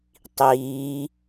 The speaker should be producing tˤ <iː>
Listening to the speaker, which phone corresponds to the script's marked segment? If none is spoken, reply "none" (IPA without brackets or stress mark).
iː